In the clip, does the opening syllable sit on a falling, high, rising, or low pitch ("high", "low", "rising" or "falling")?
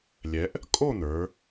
rising